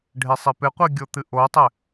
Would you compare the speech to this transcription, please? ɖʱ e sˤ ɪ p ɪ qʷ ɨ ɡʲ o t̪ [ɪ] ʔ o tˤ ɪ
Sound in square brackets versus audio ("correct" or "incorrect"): incorrect